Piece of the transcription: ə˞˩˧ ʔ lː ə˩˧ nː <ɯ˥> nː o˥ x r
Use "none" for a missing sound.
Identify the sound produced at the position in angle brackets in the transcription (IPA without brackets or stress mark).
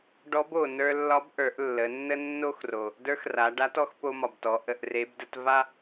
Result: ə˥